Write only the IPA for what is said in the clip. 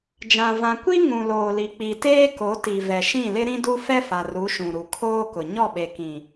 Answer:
d͡ʒã˨ vã˨ kʷi˦ŋũ˨loː˨li˨ k͡pi˨teː˦ko˨˦ti˨ vɛ˨ʃĩ˦˨lɪ˦ ɾĩ˦du˦ fɛ˦fa˨ ru˨˦ʃũ˨ɾu˨ kʰoː˦kʊ˨ ɲɔ˦˨ɓe˨kĩ˨

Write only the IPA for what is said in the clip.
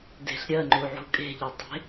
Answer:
de̤ɬ ɾʲɜŋ͡ǃu ʕṳkʼe̤ʎɜ tˤe̤

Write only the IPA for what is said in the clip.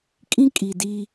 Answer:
kʼĩ˦ kʼi˨diː˦

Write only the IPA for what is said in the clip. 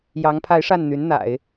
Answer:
jɑ˧˥ŋpʰa˧˥ɪ̯ʂa˥˩nn̪y˧˥n n̪a̰˨˩˦ɪ̯

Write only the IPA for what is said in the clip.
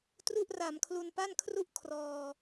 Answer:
tru˥˩ʔ ra˨˩mkʰlu˧npa˥˩n kʰru˥˩ʔ kʰrɔː˧

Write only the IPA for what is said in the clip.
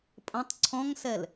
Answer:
pʼə̃tˤ ǀʰɔ̃ŋsɛl

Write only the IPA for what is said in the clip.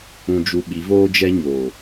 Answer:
ũ˨d͡ʒu˨ ɓi˨˦voː˦d͡ʒɛ˦ ɲoː˨

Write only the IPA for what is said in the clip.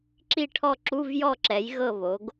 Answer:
ǁi˥˨ʈʰɔ˥˨ ǁu˧˥˧vjɔ˥˨ǁɛ˩˥j ɣɤ˥˨βo˩˥ɡ

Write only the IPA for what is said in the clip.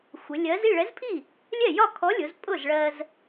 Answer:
xʷɪ˩˧lʲɜ˨˥z i˥˩ɭɛ˨˥zpʰi˥˩ | lʲɛ˥˩jɒ˥˩ kʰɔ˨˥lʲʊ˩˧z pʼʊ˥˩zɭɜ˧z

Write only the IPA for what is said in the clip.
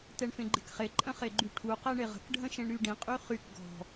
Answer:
tɛɳfẽɡ͡ǃe̤kχe ǃʼə̃χeɡ͡ǃyʈʰu qɛɳeʁə̤k ɖʱə̃ʃẽɳɾyɖĩ qʼyχyk ɡɔ̤

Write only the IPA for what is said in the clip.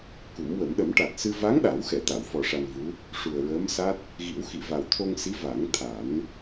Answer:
ku˨˩˦mwə˨˩˦m ɗə˨˩˦mʈa˨˩t̚sɨ˧ va˧˥ŋ ɗa˨˩˦wxɛ˨˩˨ t̪a˨˩˨wfɔ˨˩ ʂa˧nvu˧˥ | ʂu˨˩ə̯ɹəː˧˥msa˦˥t̚ | ɣi˨˩˦w xi˨˩˨va˨˩wt̪ʰo˧ŋsi˧˥ va˨˩˦ŋt̪ʰa˨˩˦n

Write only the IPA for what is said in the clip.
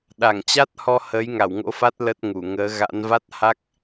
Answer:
ɗa˧˩ŋt͡ɕa˦˥t̚hɔ˧ həː˨˦jŋa˧˩wŋo̰˧˥fa˦˥t̚ lə˦˥t̚ŋu˧˩ŋəː˨˦ ɣa̰˧˥n va˦˥t̚ha˦˥k̚

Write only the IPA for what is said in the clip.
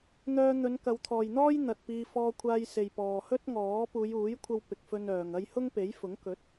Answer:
n̪œː˧ n̪ɵ˨˧nkɐ˨˧wt̪ʰɔː˨jn̪ɔː˥j n̪ɐ˨t̚piː˧ fɔː˧kʷʰaː˧j se˨jpɔː˨ hɵ˥t̚ŋɔː˨˥ puː˨˧juː˨˥jkʷʰɐ˧w pɪ˨k̚fɵ˧n œː˨ŋɐ˥j hʊ˥ŋpe˨˥jfʊ˨˥ŋ kɵ˨˥t̚

